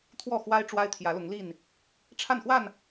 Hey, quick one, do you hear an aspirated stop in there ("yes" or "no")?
yes